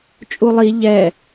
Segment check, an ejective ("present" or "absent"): present